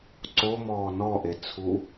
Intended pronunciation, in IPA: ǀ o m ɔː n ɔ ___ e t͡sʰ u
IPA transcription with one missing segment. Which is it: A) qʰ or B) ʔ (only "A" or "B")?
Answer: B